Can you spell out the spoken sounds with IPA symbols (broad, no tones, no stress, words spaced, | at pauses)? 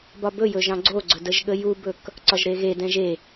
bɒbɵ jɵʒɑ̃ɡ͡ǀoɡ͡ǀɵ dəʒɠəjubɵk | ǀɒʒɾeɣe dɛ̃ʒe